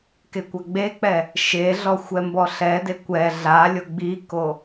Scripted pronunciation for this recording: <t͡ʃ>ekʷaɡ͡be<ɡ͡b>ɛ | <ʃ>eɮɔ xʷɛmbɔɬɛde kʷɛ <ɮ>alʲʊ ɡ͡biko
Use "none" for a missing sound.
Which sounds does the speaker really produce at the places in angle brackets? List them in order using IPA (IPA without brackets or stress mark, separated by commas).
k, k͡p, ʃ, ɮ